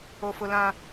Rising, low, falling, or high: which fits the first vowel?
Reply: high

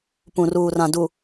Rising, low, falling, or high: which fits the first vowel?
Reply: low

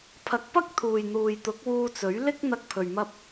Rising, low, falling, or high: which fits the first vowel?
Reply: rising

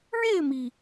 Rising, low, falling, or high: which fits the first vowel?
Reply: falling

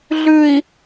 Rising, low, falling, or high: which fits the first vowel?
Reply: low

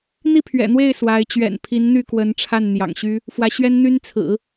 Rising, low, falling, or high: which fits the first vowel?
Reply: falling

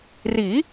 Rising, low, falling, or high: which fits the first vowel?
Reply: rising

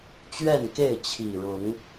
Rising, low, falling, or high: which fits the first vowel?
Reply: falling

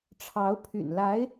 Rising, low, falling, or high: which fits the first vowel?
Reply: rising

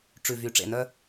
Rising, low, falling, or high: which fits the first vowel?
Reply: low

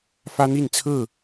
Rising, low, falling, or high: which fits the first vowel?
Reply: high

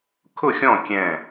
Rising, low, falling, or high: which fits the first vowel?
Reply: falling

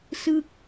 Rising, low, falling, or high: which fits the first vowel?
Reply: falling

